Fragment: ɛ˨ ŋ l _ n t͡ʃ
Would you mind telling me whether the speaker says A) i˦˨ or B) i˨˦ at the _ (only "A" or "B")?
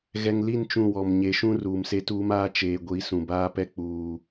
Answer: A